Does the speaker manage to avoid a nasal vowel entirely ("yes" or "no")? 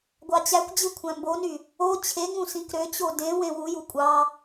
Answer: no